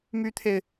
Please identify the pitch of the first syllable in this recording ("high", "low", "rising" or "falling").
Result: high